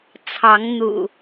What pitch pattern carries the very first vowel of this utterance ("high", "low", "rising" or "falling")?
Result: rising